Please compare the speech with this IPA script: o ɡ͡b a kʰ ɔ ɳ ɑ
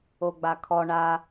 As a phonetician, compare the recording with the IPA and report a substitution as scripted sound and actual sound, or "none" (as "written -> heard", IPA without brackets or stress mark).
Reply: ɑ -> a